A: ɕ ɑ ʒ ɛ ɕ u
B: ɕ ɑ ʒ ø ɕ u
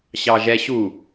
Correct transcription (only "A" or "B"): A